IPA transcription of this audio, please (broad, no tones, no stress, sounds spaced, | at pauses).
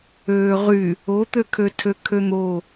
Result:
øː ʁ y | o t̪ ø kʰ ø tʰ ø kʰ ø n̪ o